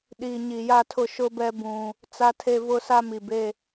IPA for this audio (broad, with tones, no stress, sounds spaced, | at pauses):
ɗ iː˨ ɲ i˨ j a˦ tʰ ʊ˦ ʃ ʊ˦ b ɛ˦ b ũ˦ | t͡s a˦ tʰ e˦ v ʊ˦ s a˦ m i˨ b e˦